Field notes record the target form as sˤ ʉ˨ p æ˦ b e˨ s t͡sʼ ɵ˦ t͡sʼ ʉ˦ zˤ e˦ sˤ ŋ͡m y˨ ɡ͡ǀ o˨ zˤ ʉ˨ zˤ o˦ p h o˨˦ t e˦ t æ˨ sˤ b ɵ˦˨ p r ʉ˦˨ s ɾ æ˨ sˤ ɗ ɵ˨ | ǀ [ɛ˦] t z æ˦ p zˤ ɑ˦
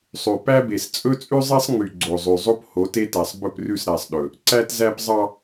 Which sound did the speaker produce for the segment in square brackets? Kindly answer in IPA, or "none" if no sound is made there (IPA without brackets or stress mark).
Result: æ˦